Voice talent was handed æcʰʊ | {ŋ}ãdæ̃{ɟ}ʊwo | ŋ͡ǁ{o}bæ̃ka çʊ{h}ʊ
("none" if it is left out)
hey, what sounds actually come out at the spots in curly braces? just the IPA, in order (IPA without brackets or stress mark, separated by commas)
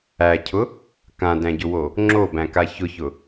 k, ɟ, o, ç